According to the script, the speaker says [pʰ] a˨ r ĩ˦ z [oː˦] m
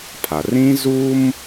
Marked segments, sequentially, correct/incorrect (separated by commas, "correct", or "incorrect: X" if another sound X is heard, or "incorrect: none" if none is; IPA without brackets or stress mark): correct, incorrect: uː˦